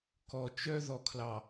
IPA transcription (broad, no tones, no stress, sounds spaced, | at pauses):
k ɔ t͡ʃ œ ð ɔ kʰ l ɑ